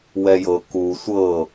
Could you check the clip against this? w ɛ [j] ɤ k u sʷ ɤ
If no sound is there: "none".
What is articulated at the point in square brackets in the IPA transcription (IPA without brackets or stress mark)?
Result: j